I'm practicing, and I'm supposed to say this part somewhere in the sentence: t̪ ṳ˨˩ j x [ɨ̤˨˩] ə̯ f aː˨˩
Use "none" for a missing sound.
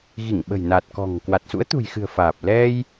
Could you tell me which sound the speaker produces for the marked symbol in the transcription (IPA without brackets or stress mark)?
ɨ̤˨˩